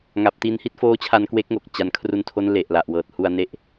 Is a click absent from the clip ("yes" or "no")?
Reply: yes